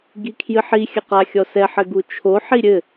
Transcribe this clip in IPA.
ɡ i kʰ j ɨ ħ i xʲ ɐ q a xʲ ɔ s ɛ ħ ɘ ɡ u t͡ʃʰ o ħ i ɾʲ ɘ

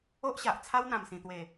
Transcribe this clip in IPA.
o˦ ʔ ɕ a˨ ʔ t͡sʰ a˦ w n̪ ã˨˩ m s ĩ˨˩ t̪ w e˨˩

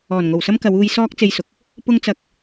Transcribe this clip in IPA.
ɔː˨˩ n ŋ o˨˩ w s ɐ˥ m k ɐ˨˧ w uː˧ j s ɔː˥ k̚ t͡s e˧ j s ʊ˨ k̚ | p ʊ˥ ŋ t͡s ɐ˧ k̚

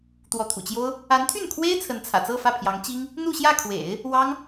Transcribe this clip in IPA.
t̪ w ɔ˧˥ t̪ʰ ṵ˨˩ t͡ɕ j o˥ ʊ̯ | a˧˥ n t̪ʰ y˥˩ n kʰ w e˥ ɪ̯ t͡sʰ ə˧˥ n t͡sʰ ä̰˨˩ t͡s ɤ˥˧ f ä˥˩ pʰ j ɑ˧˥ ŋ t͡ɕ i˥ ŋ | n̪ u˥˧ ɕ j ä˥˩ kʰ w ḛ˨˩˦ ɪ̯ | w ɑ˥ ŋ

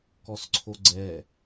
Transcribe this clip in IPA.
k ɔ s ǀʰ o ɡ͡ǀ ɛ

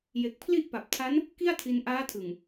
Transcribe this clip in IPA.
j e˨˩ k̚ pʰ l i˥˩ ʔ p a˨˩ p̚ tʰ a˦˥ n | k i˥˩ a̯ tʰ i˧ n ʔ aː˦˥ tʰ ɯ˨˩ ŋ

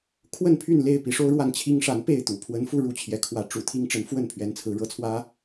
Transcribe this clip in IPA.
kʰ w ə˥˨ n pʰ y˥˨ n l e˥˨ ɪ̯ p i˨˦ ʂ o˦ ʊ̯ ɻ w a˥˨ n t͡ɕʰ i˦ ŋ ʂ a˨˦ n p e˥˨ ɪ̯ t̪ ṵ˨˩ pʰ w ə˨˦ n f u˥˨ ɻ u˥˨ t͡ɕʰ j ɛ˨˦ kʰ w ä˨˦ ʈ͡ʂ ṵ˨˩ t̪ʰ i˦ ŋ ʈ͡ʂ ə˨˦ n f w ə˥˨ n pʰ ɥ ɛ˨˦ n t͡sʰ ɹ̩˨˦ ɻ ɤ˨˦ t͡sʰ w ä˦

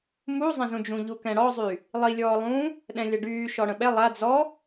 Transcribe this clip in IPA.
m u zˤ ɛ̃ z ũ d͡ʒ ũ ʎ u k ɛ̃ ɽ ɔ zˤ y | lˠ i lʲ ɔː lˠ ũː | ɗ ɛ̃ lʲ ɐ ɖ yː ʃ ɔ ɽ ə̃ ɓ ɛ lˠ a d͡z ɔ

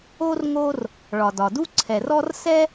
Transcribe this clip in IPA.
o˥ r ŋ o˦ r | ɭ ɒ˩ d ɒ˩ d u˥ ǀʰ ɛ˩ r ɔ˦ r s ɛ˥

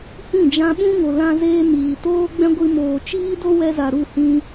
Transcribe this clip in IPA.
h ĩ˦˨ d͡ʒ ã˧ ɓ ũ˦ ŋ o˨ l ã˦ z eː˦ m iː˨ t oː˦ ɡ͡b ɛ̃˦ ɡʷ ɨ˧ m oː˨ t͡ʃ iː˦ d o˦ w ɛ˧ z a˨ ɾ u˦˨ h ĩ˧

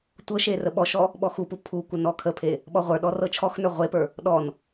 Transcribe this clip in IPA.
tʷ ɤ ʃ e r ə ɓ ɔ ʃ ɔ | ɓ ɔ x u p u pʰ u kʷ ə n ɔ kʰ ə pʰ e | ɓ ɔ ʁʷ ə˞ ɗ ɔ r ɤ t͡ʃʰ ɔ x n ə˞ ʁʷ e p ə˞ | ɗ ɔ n

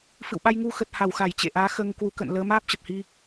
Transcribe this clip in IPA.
f ɨ̰˧˨ w ɓ a˧ j ŋ u˧ x ə˨˩ t̚ h a˧˩ w x a˧˩ j t͡ɕ ḛ˧˨ ʔ aː˨˦ x əː˧ ŋ k w u˨˦ k ə̰˧˨ n l əː˨˦ m aː˦˥ p̚ t͡ɕ ə˨˩ p̚ h i˧

